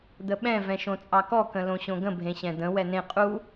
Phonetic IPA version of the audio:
d̪əɓɛ̃ vɛ̃ʃõt͡sʼɑkɔ kə̃lõɕõɡə̃ bʱẽɕɛ̃d̪ə̃ wɛnẽ qʼu

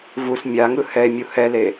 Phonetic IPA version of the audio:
vus mʲaŋɯ hɛe̯ mʲuhɛle

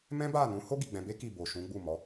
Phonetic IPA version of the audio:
mɛ̃˦ba˦˨nũ˨˦ho˦ ɡi˦˨ɡ͡bɛ̃˧be˦ki˦˨ bo˨ ʃũ˨˦ɡ͡bu˦˨ mɔ˨˦

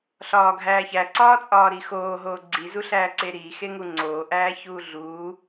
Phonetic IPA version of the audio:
ɬɒːɡʱæːçæ ǀɒːt͡sʼɒːɾixoː ɦoːɡ͡ǀi zuɬæːǀeɾiː xeŋuŋ͡ǀoː ʔæːçuːɮuː

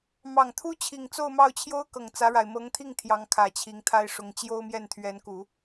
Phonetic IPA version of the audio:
mɑ˨˩ŋt̪ʰu˥ t͡ɕʰi˨˩ŋt͡so˥˧ʊ̯mɑ˥˩ʊ̯t͡ɕʰjo˥ʊ̯ kɤ˨˩ŋt͡sä˧˥ɻa˨˩ɪ̯ mɤ˧˥ŋt̪ʰi˥˩ŋ t̪ʰjɑ˧˥ŋkʰä˨˩ t͡ɕʰi˧˥ŋt̪ʰa˥ɪ̯ʂʊ˧˥ŋ t͡ɕjo˥ʊ̯mjɛ˥˩n t̪ʰɥɛ˧˥nku˨˩˦

